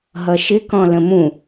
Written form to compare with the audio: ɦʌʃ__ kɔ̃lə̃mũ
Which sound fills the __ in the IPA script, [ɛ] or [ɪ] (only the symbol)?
ɪ